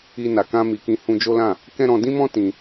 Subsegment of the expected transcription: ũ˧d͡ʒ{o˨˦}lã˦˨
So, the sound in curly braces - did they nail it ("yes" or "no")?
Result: no